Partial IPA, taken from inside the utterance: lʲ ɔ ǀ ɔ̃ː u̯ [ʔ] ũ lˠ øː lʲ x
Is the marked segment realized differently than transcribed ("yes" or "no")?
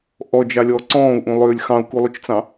no